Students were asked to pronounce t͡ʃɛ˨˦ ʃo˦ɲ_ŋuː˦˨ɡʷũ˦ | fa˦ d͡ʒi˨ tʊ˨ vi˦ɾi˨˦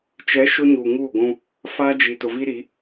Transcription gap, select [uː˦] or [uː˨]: uː˨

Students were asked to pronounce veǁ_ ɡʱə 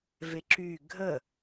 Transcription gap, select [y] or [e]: y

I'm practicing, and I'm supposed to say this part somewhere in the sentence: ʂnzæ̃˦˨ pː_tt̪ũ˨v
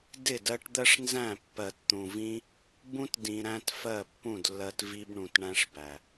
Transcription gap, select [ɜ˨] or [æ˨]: ɜ˨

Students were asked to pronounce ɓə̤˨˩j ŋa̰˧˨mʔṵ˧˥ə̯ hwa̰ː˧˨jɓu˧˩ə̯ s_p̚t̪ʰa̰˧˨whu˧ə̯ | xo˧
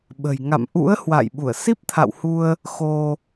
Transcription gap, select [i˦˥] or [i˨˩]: i˦˥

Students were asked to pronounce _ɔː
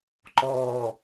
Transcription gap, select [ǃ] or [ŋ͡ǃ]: ǃ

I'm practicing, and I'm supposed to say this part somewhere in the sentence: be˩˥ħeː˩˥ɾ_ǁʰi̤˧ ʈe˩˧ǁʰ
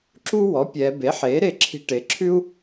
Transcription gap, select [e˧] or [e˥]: e˧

